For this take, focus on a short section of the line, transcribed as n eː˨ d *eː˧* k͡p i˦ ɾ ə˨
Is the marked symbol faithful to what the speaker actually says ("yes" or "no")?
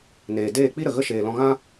no